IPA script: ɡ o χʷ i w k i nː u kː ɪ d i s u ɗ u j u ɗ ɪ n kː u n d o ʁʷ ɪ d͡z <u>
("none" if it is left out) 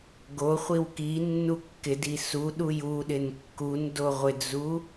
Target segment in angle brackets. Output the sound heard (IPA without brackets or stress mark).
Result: u